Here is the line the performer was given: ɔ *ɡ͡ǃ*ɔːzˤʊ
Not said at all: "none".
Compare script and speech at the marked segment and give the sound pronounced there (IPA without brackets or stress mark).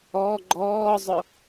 ɡ͡ǃ